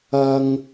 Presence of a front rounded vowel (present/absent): absent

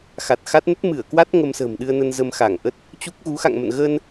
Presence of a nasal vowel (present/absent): absent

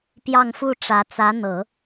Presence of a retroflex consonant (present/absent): present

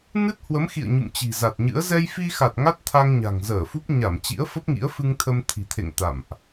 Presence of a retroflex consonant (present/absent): absent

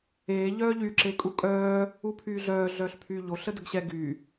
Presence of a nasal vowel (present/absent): absent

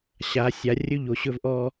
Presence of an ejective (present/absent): absent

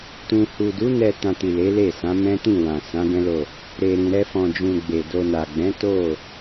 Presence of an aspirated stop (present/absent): absent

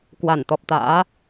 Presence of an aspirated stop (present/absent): absent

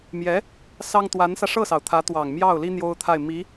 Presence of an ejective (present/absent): absent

